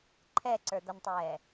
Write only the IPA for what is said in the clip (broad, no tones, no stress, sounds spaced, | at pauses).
ǃʰ ɛ ǀ ə˞ d̪ ʌ n tˤ ɛː